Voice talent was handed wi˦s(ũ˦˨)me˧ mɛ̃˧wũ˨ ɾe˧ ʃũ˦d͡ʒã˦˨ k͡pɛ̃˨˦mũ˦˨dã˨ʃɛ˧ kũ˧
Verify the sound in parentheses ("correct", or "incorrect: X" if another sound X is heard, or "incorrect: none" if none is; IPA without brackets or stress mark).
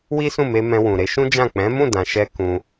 correct